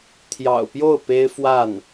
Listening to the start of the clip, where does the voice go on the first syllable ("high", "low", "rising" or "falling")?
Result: low